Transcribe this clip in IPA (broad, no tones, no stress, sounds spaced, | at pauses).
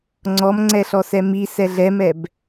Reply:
ŋ͡ǀ ɔ m ŋ͡ǀ ɛ ɬ ɔ s ɛ m i s ɛ ɮ ɛ m ɛ b